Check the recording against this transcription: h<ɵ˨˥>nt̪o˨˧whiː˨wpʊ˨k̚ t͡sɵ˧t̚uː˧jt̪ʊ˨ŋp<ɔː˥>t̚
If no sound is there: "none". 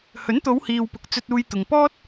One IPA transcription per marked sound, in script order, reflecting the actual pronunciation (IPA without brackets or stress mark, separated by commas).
ɵ˨˥, ɔː˥